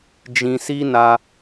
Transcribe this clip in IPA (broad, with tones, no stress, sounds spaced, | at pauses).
d͡ʒ ĩ˧ s i˦ n a˧